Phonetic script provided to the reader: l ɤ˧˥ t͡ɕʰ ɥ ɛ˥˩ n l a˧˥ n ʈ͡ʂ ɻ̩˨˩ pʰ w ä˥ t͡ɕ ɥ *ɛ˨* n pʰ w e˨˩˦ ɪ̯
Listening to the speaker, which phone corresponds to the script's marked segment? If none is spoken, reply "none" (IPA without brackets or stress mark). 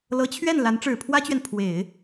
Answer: ɛ˨